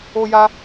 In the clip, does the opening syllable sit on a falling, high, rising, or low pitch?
high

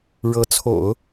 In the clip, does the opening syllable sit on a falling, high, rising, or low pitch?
rising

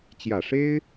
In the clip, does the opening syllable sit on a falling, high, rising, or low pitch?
low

